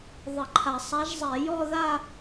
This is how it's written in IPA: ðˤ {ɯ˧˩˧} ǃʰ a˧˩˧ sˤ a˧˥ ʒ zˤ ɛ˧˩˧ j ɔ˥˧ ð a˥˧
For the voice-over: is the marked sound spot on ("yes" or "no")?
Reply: no